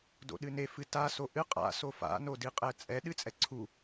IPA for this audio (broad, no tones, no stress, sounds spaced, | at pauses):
d o̰ ɗ ɨ n e f ɨ t a s o ʔ ɨ qʼ a̰ s o f a̰ n o d i qʼ ɛ t͡sʼ ɛ ɗ ɨ t͡sʼ ɛ ǀʰ u